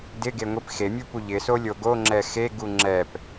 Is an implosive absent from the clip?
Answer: yes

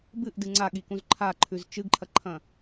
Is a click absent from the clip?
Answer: no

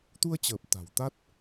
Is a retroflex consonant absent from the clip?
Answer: yes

